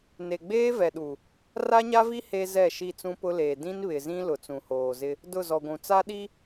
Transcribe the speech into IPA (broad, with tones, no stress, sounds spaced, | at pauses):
n e˨ ɡ͡b eː˦ v ɛ˨ ɗ u˨ | r a˦ ɲ a˦ v i˦ h e˦ z ɛ˦˨ ʃ i˦˨ t͡s ũ˦ p ʊ˦ l eː˨ d ĩ˦ n β ɪ˨ z ĩ˦ l ʊ˨ t͡s ũ˨ h oː˨ z ɪ˦ | d ʊ˦˨ z ɔ˨ ɡʷ ũ˨ t͡s a˦ ɗ i˦